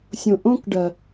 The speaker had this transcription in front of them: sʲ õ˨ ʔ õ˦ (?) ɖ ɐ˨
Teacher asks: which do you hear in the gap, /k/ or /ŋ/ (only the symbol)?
k